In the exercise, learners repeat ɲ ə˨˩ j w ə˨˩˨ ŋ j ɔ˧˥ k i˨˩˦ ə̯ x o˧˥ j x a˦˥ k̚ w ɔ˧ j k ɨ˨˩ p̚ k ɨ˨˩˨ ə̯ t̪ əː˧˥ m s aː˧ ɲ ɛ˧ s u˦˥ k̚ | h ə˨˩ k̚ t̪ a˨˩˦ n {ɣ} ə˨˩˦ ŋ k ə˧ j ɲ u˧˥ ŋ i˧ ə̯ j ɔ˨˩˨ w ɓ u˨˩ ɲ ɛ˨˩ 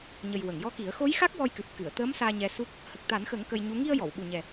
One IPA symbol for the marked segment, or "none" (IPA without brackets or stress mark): x